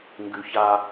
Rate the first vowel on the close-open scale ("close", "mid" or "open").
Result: close